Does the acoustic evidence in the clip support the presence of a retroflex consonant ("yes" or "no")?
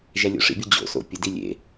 yes